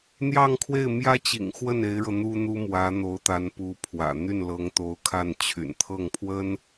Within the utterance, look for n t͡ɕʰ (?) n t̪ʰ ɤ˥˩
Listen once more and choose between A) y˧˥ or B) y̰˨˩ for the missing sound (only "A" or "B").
B